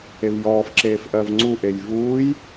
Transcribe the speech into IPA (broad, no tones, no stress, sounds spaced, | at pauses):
e v j ɔː f ǁ eː f ʔ ɜ v ŋ͡ǀ u ʔ e j v uː j